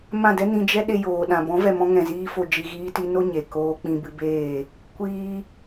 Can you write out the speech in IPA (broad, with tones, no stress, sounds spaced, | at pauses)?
m ã˦˨ d ɛ˦ n ĩ˧ d͡ʒ ɛ˦ ɗ e˧ j oː˨ ɗ ã˨ b ɔ̃˨˦ v ɛ˨ m ɔ̃˧ ŋ ɛ̃˨ z iː˦ f o˧ d͡ʒ i˧ ɣ iː˦ t i˦ n o˦ ɲ e˨ k oː˦ k͡p ĩ˧ b ɨ˧ b eː˦˨ | kʷ iː˧